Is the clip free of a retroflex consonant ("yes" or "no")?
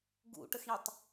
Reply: no